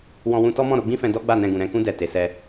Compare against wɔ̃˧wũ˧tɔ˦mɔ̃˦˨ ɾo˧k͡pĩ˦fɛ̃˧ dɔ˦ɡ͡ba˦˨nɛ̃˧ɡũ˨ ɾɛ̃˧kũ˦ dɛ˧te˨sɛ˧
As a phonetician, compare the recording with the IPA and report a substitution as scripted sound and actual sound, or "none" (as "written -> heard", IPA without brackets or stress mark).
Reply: k͡p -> ɡ͡b